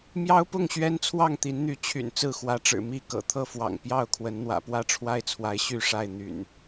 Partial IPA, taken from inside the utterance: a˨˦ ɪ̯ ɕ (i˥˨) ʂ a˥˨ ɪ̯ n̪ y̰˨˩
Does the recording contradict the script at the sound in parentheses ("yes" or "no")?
yes